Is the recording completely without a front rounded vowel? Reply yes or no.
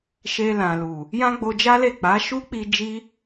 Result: yes